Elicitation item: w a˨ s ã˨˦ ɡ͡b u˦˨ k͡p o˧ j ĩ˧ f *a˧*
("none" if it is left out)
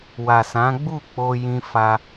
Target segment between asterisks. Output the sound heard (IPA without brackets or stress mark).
a˧